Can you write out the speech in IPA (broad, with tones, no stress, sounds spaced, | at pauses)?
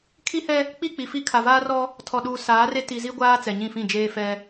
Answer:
kʰ i˦ h ɛ˦ | k͡p i˦˨ k͡p i˨ f i˦ kʰ a˨ v aː˦ r ɔ˦ | tʰ ɔ˨ ɗ uː˨ s aː˨˦ r e˦ t i˨ z i˦ ɡʷ aː˦ t͡s ɛ˨ ɲ ĩ˦˨ f ĩ˦˨ d͡ʒ eː˦ f ɛ˦